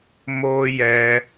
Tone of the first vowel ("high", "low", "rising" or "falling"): high